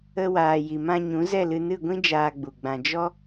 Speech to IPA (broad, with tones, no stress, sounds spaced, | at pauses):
ə˦ w aː˨ j i˨ m ã˧ ɲ ũ˨˦ z ɛ˦˨ l ɨ˧ n ɨ˦˨ ɡʷ ĩ˦ d͡ʒ aː˧ ɡ͡b u˨ ɡ͡b ã˧ d͡ʒ ɔ˦